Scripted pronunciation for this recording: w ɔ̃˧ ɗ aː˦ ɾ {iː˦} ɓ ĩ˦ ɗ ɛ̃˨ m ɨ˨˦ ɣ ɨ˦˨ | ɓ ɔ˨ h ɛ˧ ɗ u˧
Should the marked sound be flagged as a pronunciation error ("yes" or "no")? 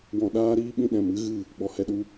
no